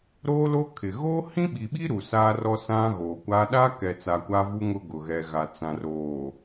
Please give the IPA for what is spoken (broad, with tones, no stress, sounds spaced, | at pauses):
ɾ oː˦ l o˦ kʰ ɪ˨ ɣ oː˦ h ĩ˦ ɓ i˨ ɓ i˦ ɾ u˨ s aː˦ r ɔ˦ s ã˦ ɣ oː˨ kʷ aː˦ ɗ a˦ k ɛ˨ t͡s a˨ kʷ a˦ v u˦ ŋ ʊ˦ ɡ ʊ˨ ɣ ɛ˨ ɣ a˨ t͡s ã˨ r oː˨